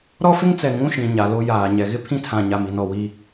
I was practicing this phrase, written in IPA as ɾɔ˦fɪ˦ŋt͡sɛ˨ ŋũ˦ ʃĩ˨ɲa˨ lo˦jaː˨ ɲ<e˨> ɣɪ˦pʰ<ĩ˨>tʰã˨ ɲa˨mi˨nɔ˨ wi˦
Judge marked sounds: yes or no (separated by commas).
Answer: no, no